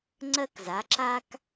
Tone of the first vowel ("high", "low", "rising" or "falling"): high